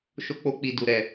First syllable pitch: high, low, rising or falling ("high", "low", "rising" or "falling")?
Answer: high